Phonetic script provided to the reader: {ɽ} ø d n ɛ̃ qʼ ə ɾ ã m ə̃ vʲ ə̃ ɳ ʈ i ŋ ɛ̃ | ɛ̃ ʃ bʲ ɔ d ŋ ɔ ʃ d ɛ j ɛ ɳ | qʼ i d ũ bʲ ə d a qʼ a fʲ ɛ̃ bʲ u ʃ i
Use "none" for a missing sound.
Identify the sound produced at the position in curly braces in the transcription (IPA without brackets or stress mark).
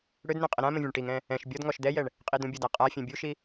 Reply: ɽ